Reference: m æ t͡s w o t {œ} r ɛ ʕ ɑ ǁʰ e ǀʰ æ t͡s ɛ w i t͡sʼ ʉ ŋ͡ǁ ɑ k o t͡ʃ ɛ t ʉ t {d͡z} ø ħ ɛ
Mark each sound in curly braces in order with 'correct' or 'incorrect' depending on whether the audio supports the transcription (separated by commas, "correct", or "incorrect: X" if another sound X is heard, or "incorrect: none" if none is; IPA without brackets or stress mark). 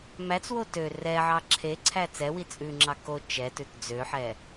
incorrect: ø, correct